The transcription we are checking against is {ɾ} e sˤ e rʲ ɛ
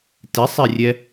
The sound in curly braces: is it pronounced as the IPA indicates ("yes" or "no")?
no